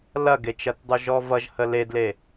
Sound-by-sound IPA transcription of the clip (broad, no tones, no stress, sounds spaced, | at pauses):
l ɐ ɡ e t͡ʃ ɐ t dˤ u ʒ ɔ v ʌ ʒ h ə l e d l e